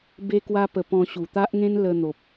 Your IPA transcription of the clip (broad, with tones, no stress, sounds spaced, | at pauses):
b e˦ k w a˦ p ə˧ p ɔ̃˧ ɕ u˨˩ t̪ a˦ ʔ ŋ ẽ˦ n l ə˧ n̪ o˨ p̚